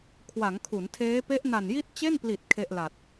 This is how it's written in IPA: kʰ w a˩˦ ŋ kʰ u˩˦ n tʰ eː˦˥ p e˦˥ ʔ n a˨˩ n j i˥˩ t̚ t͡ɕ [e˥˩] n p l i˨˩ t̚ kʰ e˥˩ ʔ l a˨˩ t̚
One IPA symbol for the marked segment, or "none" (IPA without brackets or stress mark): e˥˩